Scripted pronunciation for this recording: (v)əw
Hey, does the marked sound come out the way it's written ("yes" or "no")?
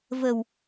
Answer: yes